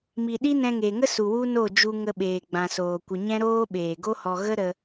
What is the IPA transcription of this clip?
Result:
m i˨ ɗ i˦ n ɛ̃˧ ŋ e˨ ŋ ə˦ s u˨ w u˦ n o˦˨ d͡ʒ u˧ ŋ ə˧ ɓ eː˨ ɡ͡b ã˨ s oː˨ kʷ ə˧ ɲ ɛ̃˦ ɾ oː˦ ɓ eː˨ ɡ o˦ h ɔ˧ ɣ ə˦ ɾ ə˦

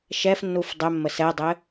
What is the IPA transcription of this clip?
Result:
ʃ ɛ f nː u f dˤ ɛ mː ə s ɛ dˤ ɘ

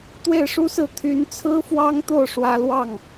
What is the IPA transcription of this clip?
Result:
t̪ w e˥˩ ɪ̯ ʂ u˥ s ɹ̩˥˩ t̪ʰ y˧˥ n t͡sʰ ɹ̩˥ f w ɑ˥ ŋ t̪ o˥˩ ʊ̯ ʂ w ä˥ l w ɑ˥˩ ŋ

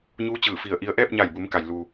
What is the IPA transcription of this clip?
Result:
ɲ uː˧˥ t͡ɕ ɯː˧˩ f i˧˩ ə̯ ʔ i˧ ə̯ ʔ ɛː˥˨ p̚ ɲ a˧˩ j b u˩˧ m k a˩ j l u˩

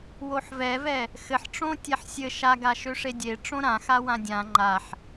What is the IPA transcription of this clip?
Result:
w o ħ v ɛ v ɛ | x ɘ ħ ʈ͡ʂ õ tʲ ɛ ħ sʲ ɘ ʃ a ɡ a ʃ ø ʂ e dʲ e ʈ͡ʂ õ ɾ ã x a w ã dʲ ã ŋ͡ǃ a ħ

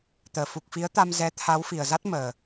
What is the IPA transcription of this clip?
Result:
t̪ əː˧˩ f u˨˩ k̚ f i˨˦ ə̯ t̪ a˧ m z ɛ˨˦ t̪ʰ a˨˦ w f i˨˩ ə̯ z a˦˥ t̚ m əː˨˩

